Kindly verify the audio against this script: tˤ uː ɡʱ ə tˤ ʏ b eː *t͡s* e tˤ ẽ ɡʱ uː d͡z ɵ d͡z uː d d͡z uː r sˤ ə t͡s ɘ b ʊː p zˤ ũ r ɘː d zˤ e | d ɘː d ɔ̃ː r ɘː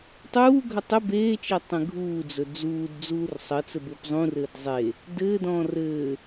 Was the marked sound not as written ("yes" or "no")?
yes